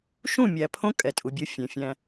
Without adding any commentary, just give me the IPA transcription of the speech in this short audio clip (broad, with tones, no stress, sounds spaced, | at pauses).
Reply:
ʃ ũ˦˨ mʲ æ˨ pʰ õ˦ kʼ ɛ˨ tʼ u˨ bʲ o˦ fʲ ɛ̃˨ fʲ æ̃˦